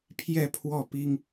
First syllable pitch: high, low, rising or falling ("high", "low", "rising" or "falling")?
falling